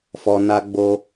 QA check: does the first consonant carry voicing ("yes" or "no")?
no